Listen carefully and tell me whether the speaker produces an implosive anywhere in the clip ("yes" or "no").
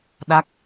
yes